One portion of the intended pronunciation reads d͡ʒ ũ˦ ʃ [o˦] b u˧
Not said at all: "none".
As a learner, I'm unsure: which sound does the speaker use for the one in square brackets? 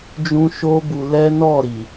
o˦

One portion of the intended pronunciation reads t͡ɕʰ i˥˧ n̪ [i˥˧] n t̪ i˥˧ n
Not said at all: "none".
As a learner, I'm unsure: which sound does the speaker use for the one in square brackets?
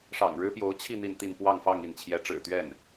i˥˧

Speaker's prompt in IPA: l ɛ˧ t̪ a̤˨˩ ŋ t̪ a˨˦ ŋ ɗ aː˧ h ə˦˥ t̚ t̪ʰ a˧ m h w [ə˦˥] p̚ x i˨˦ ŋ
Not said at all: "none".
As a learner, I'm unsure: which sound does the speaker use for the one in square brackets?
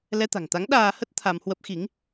ə˦˥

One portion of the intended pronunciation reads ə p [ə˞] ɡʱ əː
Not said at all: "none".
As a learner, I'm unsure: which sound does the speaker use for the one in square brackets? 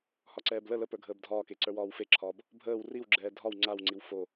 ə˞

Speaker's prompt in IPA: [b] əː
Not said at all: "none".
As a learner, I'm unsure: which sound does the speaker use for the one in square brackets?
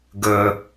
ɡ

